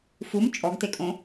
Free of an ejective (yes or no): no